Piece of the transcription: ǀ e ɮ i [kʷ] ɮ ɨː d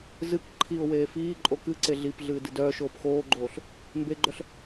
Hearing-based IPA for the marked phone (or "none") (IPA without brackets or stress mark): p